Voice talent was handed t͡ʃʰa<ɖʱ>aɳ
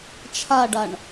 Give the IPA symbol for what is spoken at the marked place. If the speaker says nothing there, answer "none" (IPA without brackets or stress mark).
ɖ